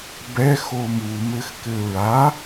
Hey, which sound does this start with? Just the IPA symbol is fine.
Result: b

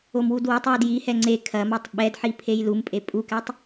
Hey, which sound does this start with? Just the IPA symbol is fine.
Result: o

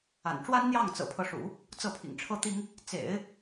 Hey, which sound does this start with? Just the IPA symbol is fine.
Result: a̰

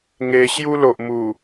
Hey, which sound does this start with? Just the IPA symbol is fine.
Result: ŋ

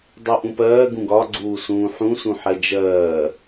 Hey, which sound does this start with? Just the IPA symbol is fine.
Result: dˤ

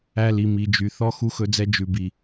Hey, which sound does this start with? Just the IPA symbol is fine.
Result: æ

